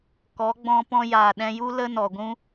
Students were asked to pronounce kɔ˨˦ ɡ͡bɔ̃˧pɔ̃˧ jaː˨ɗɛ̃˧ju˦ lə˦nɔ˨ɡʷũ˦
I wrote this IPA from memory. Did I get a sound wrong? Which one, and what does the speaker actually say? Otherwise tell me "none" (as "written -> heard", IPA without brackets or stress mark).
none